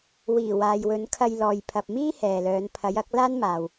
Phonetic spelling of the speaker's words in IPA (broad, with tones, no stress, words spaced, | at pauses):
wiː˨˩ waː˨jwɵ˨˧nkʰɐ˧jlɔː˨j pʰɐ˨p̚miː˥ hɛː˨lœː˨˧n pʰɐ˨˧jɐ˨˥k̚ laː˥nmaː˨w